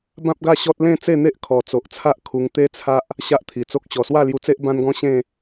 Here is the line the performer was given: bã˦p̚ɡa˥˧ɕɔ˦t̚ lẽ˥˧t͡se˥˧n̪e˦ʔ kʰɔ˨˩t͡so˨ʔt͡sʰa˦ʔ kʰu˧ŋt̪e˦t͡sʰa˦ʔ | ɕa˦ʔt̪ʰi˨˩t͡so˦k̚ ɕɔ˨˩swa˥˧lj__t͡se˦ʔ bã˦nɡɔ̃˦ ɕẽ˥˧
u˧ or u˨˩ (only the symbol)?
u˧